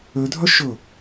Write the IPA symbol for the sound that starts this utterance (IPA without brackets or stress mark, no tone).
ø